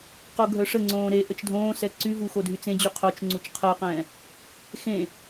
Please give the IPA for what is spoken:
q o ɡʱ œ ʂ ə ŋ͡ǀ õː ɾ e ʔ ə t͡ʃ dʱ õː s ɛ ǀ y v u x o dʱ y t͡s ẽ d͡ʑ y qʰ o t͡ʃ ŋ͡ǀ u t͡ʃ qʰ əː q ɛ̃ː | x ẽ

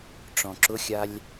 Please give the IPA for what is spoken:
ʈ͡ʂ ɔ̃ ǁ ʊ xʲ a lʲ

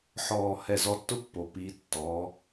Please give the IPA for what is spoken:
ħ ɔː˧˩ h ɛ˧˩ z ɔ˧ tː ʊ˥ pː o˩˧ p i˩˧ tː ɔ˩˧

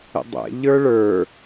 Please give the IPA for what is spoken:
ə̰ dˤ ɛ̰ ʎ ə˞ ɭ ə˞

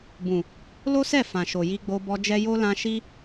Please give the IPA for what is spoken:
b ũ˨ | l o˦ s ɛ˦˨ f ã˨ ʃ o˨ j i˧ ɡ͡b o˧ b ɔ˧ d͡ʒ ɛ˦ j o˦ l ã˧ ʃ i˦

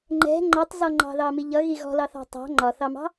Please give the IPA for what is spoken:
ŋ͡ǃ ɛ̤ ŋ͡ǃ ɔ tˤ z ɔ ŋ͡ǃ ɑ̤ ð ɑ m i ʎ ʌ ɣ i ɣ ɔ̤ l ɑ θ ɑ̤ tˤ ɑ̤ ŋ͡ǃ ɒ θ ɑ m ɑ̤

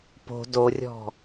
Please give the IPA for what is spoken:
p o̤ d o rʲ ɔ̤

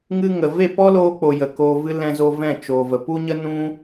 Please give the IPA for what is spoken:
ŋ ɨ˦ ŋ ə˨ v e˦˨ p ɔ˦ l oː˧ k͡p o˨ j ə˨ k oː˧ v ɨ˦ l ɛ̃˧ z o˧ v ɛ̃˦˨ t͡ʃ oː˨ v ə˨ p u˦ ɲ ə˦ n ũ˦

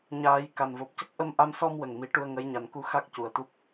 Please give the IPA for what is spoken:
ɲ aː˨˩˦ j k a˨˩ n v o˨˩ p̚ c ə˦˥ k̚ ʔ ə˧ m ʔ a˧ m s ɔ˧ m w ə˨˩ ŋ m i˨˩˦ ʈ u˧ ə̯ ŋ ə˧˥ j ɲ a˨˩ n k u˧˥ x a˦˥ k̚ c u˨˩ ə̯ t̪ u˦˥ p̚

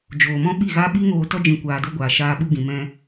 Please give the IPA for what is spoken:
d͡ʒ oː˨ m ɔ̃˦ ɓ i˦˨ ɣ a˦ ɓ i˦ ŋ oː˧ t ɔ˦ d͡ʒ ĩ˧ kʷ aː˧ d o˦ ɡʷ aː˨ ʃ aː˧ ɓ u˧ ɡ ĩ˨ m ɛ̃˧

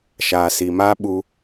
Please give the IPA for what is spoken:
ʃ aː˨ s i˨ m aː˦ ɓ u˦

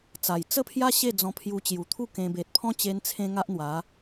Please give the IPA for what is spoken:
t͡s a˨˩ j t͡s ə˦ pʰ j a˦ ɕ e˥˧ d͡z ɔ̃˧ pʰ j u˧ t͡ɕ j u˨˩ t̪ʰ u˥˧ k ẽ˧ b e˨ t̚ pʰ ɔ̃˦ t͡ɕ e˧ n t͡sʰ ẽ˦ ŋ a˦ ʔ n̪ w a˨˦

